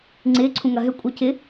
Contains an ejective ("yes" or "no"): yes